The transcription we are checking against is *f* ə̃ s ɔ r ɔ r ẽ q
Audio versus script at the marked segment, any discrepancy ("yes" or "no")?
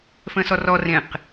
no